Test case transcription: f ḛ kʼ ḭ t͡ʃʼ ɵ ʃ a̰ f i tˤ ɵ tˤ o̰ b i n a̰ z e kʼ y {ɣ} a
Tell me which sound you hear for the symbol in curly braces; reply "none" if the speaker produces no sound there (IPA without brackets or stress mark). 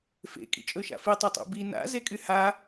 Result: h